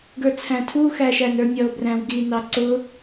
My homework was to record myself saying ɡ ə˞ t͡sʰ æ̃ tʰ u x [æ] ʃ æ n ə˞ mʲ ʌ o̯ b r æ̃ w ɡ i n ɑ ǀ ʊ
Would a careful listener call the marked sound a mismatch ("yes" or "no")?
no